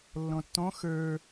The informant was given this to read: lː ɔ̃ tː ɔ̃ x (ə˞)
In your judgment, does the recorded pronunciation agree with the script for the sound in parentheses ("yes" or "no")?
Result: yes